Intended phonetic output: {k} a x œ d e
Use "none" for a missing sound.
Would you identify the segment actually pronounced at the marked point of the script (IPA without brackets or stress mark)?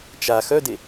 t͡ʃ